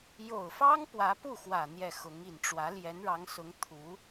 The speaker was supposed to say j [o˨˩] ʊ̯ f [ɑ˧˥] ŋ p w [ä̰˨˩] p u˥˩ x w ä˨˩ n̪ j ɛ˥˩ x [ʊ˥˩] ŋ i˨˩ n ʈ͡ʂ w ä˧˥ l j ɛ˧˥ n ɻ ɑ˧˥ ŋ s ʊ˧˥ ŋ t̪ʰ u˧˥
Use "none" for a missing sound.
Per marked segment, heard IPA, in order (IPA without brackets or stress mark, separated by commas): o˨˩, ɑ˥, ä˧˥, ʊ˧˥